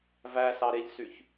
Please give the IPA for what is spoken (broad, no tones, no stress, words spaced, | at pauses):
væsɑɾeʎsyç